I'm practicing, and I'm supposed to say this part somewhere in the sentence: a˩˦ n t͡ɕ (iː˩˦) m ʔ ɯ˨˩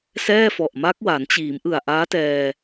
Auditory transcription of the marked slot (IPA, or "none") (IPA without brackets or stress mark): iː˩˦